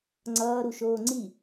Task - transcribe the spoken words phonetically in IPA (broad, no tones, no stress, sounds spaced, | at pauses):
ŋ͡ǀ ʌː ɾ u ʃ oː ŋ͡ǀ i